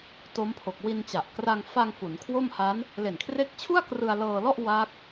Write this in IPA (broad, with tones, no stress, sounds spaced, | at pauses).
t o˦˥ m pʰ o˨˩ k̚ w i˧ n t͡ɕ a˨˩ ʔ k r a˧ ŋ f a˧ ŋ f u˩˦ n kʰ w o˥˩ m h a˦˥ n | l e˨˩ n kʰ r e˦˥ k̚ t͡ɕʰ u˥˩ a̯ k r ɯ˧ a̯ l ɤː˧ l ɔ˥˩ ʔ w a˦˥ k̚